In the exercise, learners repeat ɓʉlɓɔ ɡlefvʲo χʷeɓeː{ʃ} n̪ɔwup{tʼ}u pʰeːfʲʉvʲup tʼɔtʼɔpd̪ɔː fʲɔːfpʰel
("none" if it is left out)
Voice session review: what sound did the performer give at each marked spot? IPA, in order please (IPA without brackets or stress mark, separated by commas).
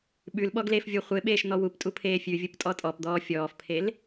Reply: ʃ, tʼ